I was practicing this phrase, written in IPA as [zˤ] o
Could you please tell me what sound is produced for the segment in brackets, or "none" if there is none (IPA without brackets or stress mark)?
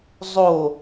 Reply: zˤ